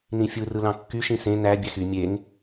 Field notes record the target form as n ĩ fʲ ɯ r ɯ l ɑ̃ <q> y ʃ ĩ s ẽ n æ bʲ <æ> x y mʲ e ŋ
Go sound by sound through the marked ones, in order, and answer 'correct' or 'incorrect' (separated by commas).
incorrect, correct